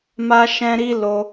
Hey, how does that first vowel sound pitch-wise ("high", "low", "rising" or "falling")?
high